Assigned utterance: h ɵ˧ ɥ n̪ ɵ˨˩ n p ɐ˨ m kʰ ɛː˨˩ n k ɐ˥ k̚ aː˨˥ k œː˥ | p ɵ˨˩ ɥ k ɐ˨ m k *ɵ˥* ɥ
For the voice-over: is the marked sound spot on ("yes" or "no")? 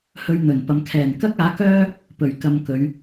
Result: no